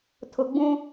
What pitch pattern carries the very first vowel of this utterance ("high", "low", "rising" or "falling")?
low